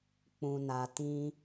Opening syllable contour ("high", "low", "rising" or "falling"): low